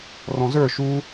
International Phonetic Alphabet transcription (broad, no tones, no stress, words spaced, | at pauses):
rɔ̃zə˞ ʃu